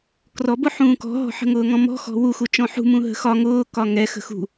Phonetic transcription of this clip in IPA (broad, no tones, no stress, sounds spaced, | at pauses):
k r ɔ b ʊ ħ ũː k ɔ̤ ɦ ɔ̤ ħ ə̤ ŋ ʊː ŋ ɔ̃ m ɔ̤ x ɔ̤ w u x u t͡ʃ ɔ̃ ħ ṳ m ũ ɦ ə̤ x ɒ ŋ ʊː k ɒ ŋ ɛ x ə̤ x ṳ